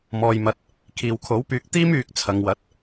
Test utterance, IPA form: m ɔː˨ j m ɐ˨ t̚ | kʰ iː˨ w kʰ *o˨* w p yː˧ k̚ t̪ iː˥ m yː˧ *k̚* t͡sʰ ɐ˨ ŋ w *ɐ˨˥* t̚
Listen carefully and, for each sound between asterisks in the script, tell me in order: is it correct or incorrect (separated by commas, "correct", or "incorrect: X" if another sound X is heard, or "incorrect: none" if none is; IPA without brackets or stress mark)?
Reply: incorrect: o˨˥, correct, correct